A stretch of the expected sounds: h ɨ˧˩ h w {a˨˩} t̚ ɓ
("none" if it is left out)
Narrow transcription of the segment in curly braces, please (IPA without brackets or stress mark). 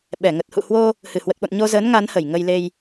ə˨˩